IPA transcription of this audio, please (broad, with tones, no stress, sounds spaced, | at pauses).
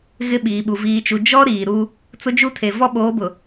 ɣ ɪ˦ ɓ iː˨ ɓ u˨ v iː˨ t͡ʃ u˨ d͡ʒ ɔ˦ ɾ iː˨ ɾ u˦ | t͡s ʊ˦ d͡ʒ u˦ tʰ e˨ v ɔ˦ ɓ oː˨˦ b ʊ˨